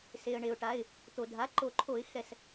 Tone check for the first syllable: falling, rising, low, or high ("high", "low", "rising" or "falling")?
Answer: low